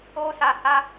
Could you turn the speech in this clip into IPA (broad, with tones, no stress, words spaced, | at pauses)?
o˦sa˧ha˦